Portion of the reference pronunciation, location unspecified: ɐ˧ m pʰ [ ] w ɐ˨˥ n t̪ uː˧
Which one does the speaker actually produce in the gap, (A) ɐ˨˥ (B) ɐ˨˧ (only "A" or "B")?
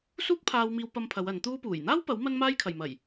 B